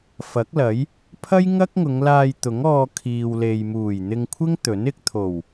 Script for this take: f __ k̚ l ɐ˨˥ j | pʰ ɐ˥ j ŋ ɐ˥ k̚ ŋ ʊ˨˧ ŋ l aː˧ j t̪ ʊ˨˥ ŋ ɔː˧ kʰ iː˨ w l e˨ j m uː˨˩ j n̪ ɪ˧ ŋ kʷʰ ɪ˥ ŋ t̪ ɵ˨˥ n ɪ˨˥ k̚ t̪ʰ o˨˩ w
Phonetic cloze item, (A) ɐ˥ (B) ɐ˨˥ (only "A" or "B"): B